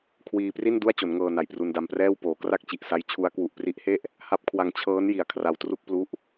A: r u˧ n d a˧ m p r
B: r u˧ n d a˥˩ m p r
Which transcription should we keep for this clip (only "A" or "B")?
A